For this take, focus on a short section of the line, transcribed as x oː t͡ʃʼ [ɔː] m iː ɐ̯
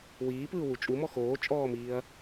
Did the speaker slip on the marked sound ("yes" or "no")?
no